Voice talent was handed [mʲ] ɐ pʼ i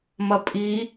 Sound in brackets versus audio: incorrect: m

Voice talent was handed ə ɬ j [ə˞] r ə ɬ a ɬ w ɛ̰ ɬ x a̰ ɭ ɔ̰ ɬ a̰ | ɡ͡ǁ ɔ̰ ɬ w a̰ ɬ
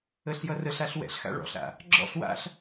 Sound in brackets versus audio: incorrect: ʌ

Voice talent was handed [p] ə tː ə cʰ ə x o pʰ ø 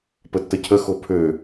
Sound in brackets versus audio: correct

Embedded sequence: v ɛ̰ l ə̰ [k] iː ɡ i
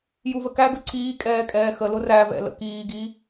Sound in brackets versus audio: correct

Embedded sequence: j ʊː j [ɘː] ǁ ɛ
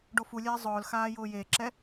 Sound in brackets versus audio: incorrect: eː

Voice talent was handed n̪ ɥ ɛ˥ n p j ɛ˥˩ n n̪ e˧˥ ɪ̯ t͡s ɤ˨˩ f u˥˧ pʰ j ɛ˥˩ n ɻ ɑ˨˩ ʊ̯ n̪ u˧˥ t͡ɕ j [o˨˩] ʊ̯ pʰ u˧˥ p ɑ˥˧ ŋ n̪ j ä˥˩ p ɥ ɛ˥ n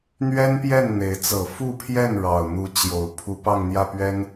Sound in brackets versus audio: correct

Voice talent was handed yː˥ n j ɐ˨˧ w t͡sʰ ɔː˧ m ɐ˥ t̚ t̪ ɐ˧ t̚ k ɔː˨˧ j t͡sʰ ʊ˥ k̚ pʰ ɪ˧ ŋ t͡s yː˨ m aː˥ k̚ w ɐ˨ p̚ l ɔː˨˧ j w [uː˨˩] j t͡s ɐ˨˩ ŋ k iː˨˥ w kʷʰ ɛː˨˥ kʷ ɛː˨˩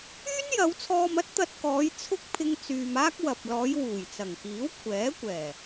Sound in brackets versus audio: correct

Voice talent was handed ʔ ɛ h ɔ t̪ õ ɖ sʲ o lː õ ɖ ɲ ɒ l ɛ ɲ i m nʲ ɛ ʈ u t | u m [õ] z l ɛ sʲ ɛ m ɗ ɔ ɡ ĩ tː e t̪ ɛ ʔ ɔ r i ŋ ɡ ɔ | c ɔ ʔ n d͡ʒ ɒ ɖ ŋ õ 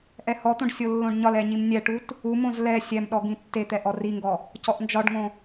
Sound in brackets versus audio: correct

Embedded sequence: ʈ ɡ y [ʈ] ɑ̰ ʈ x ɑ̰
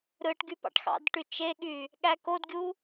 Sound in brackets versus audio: incorrect: p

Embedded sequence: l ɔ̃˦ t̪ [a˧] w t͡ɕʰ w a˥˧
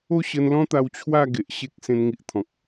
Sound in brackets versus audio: correct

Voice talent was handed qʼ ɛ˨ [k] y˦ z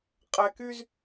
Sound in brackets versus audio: correct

